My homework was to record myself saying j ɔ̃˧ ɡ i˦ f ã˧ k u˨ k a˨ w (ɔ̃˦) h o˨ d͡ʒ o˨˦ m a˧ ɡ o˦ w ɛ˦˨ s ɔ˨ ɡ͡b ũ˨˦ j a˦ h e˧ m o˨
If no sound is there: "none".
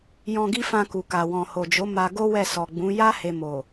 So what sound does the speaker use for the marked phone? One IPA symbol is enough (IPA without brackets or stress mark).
ɔ̃˨